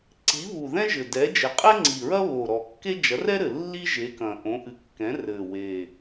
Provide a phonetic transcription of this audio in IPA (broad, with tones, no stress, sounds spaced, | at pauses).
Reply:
ǀ i˨˥ β u˨˩ ð ɛ̃˥ ʒ ɘ˨˩ d ɛ˨˥ d͡ʒ ɘ˨˥ qʼ ɛ˥ ŋ͡ǀ i˨˩ ɹ ɐ˥ β o˨˩ ɾ ɔ˨˩ kː e˥ d͡ʒ ɐ˨˥ r ɛ˥ ɾ ɘ˨˩ lː i˥ ʒ e˨˥ k ɐ̃˨˩ ʔ õ˨˥ ʔ ɨ˨˥ kː ɛ̃˨˥ r ɘ˨˩ w e˨˩